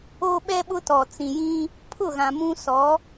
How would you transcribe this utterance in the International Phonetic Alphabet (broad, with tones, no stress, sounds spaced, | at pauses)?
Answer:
oː˦ ɓ ɛ˦ ɓ ʊ˦ t ɔ˨ t͡s ĩ˨ j ĩ˦ | pʰ ʊ˦˨ ɣ ã˨ m ũ˦ s ɔ˨˦